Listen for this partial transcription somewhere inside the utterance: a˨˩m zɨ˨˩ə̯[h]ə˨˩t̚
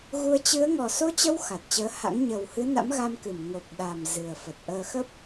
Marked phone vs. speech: incorrect: f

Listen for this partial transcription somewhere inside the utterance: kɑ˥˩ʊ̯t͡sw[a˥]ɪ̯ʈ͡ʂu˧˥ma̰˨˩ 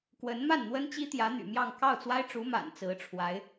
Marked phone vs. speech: correct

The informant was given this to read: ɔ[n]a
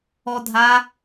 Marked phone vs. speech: incorrect: dʱ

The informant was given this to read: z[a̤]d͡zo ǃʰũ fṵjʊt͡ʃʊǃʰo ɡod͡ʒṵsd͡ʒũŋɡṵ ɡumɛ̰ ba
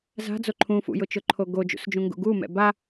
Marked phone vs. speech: correct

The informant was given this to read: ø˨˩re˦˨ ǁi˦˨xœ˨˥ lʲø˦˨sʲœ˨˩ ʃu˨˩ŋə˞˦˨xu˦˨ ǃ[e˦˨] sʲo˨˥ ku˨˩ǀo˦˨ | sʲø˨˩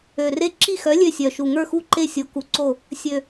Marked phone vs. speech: correct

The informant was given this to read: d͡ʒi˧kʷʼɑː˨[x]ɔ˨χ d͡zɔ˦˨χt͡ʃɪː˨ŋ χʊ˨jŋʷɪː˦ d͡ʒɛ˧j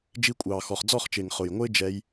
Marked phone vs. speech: correct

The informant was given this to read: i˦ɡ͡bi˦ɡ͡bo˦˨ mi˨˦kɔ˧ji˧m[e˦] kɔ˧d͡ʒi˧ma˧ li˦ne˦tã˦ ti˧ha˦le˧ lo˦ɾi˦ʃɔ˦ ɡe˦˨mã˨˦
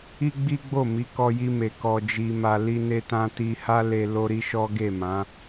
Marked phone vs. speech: incorrect: e˨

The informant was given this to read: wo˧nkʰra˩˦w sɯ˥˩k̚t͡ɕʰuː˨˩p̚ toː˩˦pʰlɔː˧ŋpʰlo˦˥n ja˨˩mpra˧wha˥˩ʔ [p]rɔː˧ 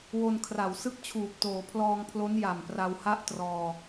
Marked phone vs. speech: incorrect: t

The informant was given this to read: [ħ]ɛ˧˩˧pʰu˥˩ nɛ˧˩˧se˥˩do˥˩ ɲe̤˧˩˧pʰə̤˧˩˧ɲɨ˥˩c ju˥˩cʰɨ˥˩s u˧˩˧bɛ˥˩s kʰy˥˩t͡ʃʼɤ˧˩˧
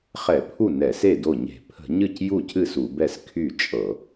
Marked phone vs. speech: incorrect: χ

